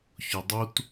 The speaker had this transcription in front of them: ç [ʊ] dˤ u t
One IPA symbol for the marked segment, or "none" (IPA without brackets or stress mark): ʊ